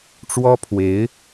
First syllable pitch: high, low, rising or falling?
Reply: high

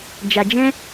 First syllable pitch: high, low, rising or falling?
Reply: low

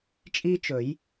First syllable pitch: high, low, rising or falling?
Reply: high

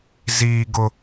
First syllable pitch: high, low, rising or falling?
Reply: low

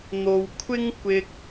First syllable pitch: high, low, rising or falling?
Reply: low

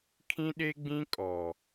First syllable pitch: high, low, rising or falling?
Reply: high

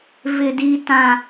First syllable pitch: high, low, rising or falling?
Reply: low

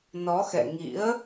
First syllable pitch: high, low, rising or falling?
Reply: rising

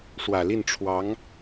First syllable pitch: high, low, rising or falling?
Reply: low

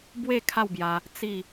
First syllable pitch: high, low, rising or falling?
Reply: falling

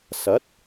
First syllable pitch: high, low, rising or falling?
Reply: rising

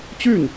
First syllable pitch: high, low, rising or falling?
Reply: falling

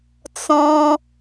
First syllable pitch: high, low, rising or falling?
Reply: high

